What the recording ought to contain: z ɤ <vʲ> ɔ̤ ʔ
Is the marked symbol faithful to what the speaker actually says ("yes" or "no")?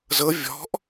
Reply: yes